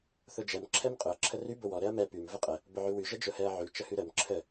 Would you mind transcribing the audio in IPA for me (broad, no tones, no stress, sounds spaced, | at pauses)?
θ ʊ d͡ʒ ɛ m ǁʰ ɛ m qʼ ʊ ɐ̯ ǁʰ ə r y b ʊ w ɔ ɾ ɛ ɐ̯ m ɛ p y m v ə qʼ ə | b ʊ ʕ y w y ʒ ə d͡ʒ ʊ h ɛ ɐ̯ ʕ y t͡ʃ ə h y ɾ ə m ǁʰ ə